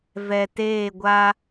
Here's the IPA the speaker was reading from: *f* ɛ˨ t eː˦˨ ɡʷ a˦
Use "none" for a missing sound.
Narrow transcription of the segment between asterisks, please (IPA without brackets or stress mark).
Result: v